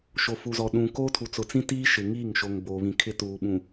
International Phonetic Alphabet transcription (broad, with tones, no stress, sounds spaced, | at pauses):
ʃ o˨ f u˨ z ɔ˨ ɗ ũ˨ k oː˦ tʰ u˨ t͡s ʊ˨ t͡s ĩ˦ t iː˦ ʃ ɪ˨ ŋ i˦˨ ŋ ʃ o˨ ŋ b oː˨ β ĩ˨ kʰ ɪ˦ t uː˨ ɓ ũ˨